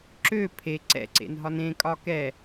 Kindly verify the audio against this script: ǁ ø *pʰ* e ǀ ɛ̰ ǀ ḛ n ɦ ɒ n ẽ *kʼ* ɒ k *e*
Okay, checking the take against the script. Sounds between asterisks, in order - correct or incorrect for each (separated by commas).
correct, correct, incorrect